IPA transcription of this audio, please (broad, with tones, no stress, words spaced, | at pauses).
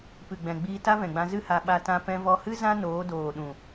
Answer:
pɨ˨ɡ͡bɛ̃˨ɡ͡biː˧ ta˦vɛ̃˨ɡ͡bã˧ zɨ˦ha˧ ɓa˧tã˧ pɛ̃˧vɔ˧hɨ˦ zã˦ noː˨˦doː˨ ɗũ˨